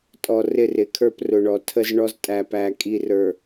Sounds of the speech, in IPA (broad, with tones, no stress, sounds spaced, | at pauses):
tʼ ɔ˨ r ɪ˦˨ r ɪ˨˦ kʰ ə˞˦ p r ʊ˨ ɳ ɔ˨ tʰ ə˦ z ɳ ɔ˦ z tʼ æ˨ p æ˨ kʼ i˨ r ə˞˨